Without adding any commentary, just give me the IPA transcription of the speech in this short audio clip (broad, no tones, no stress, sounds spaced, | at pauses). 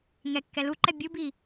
ŋ ɛ kː ɛ l u ǃ ɛ bʲ u b i